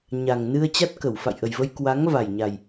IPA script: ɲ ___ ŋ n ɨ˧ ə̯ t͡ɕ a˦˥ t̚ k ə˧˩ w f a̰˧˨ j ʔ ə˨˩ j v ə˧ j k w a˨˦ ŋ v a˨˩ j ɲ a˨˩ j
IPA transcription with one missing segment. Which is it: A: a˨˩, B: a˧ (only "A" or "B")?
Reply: A